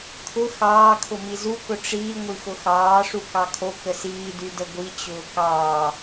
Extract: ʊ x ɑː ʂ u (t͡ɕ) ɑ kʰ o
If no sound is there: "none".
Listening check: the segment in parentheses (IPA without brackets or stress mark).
k